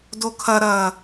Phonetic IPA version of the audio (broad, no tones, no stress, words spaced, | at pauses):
dokʰɐɾɐː